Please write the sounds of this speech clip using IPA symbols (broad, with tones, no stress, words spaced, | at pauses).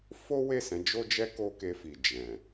fo˦we˦˨ sɛ̃˨˦d͡ʒo˦d͡ʒɛ˦ ko˦ke˧fi˨ d͡ʒɛ̃˨